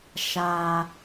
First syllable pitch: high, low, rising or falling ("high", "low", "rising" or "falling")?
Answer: low